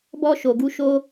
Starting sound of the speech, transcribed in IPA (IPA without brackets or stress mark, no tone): b